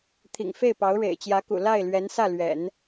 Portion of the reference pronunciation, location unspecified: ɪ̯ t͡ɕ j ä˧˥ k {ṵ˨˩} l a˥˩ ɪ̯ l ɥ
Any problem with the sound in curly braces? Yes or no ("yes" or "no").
no